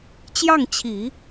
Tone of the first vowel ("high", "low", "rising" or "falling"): falling